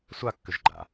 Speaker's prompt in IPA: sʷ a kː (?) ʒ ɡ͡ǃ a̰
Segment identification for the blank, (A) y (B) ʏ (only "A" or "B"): B